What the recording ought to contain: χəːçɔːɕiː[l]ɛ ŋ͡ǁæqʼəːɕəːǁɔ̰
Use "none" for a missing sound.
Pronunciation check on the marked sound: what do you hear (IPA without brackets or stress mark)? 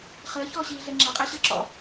ɮ